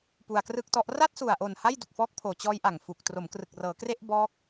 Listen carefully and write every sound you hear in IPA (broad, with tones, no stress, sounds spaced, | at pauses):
p u˧ a̯ k r ɯ˥˩ k̚ t ɔ˦˥ ʔ r a˥˩ t̚ s u˨˩ a̯ ʔ o˨˩ n h a˥˩ j d u˨˩ k̚ f ɔː˦˥ k̚ pʰ oː˨˩ t͡ɕ ɔː˦˥ j ʔ a˨˩ ŋ f u˨˩ k̚ t r o˩˦ m k r ɯ˨˩ k̚ r ɤː˩˦ k r e˥˩ ʔ b ɔː˦˥ k̚